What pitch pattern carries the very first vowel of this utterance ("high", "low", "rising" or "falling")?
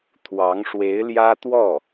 rising